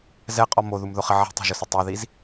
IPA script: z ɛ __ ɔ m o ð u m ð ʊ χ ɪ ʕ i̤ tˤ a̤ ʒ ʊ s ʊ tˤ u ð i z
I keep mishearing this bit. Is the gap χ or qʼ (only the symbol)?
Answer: qʼ